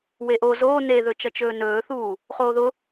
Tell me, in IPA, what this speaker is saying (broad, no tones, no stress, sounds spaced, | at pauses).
w e ʔ o z oː n e ð ɵ t͡ʃ ʌ t͡ʃ ɵː n ɵː θ uː | χ oː ð ʊ